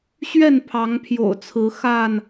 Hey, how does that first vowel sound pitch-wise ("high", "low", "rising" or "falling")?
falling